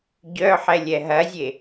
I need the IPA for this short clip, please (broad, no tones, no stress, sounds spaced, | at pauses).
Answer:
ɟ œ ħ ɛ lʲ ɛ ɦ ɐ zʲ e